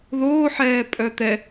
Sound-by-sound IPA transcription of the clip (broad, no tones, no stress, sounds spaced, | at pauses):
ð oː ħ ɛː pʼ œ t̪ ɛ